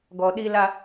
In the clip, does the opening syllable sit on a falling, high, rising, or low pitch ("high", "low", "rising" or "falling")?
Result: low